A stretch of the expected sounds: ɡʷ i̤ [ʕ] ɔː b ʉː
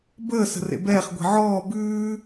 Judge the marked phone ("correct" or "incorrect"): correct